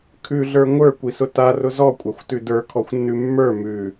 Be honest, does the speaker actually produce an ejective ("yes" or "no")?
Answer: yes